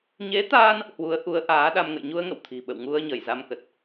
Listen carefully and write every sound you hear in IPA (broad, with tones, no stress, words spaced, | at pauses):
ɲe˨˦t̪aː˧n | hwu˨˦ə̯ʔu˨˦ə̯ ʔaː˨˦ɗa˧m ŋə̰˧˨jɲu˧ə̯ŋə̰˧˨w t̪ʰi̤˨˩ɓə̰˧˨wŋu˧ə̯ ɲə˧˩jza˧mkə˨˩t̚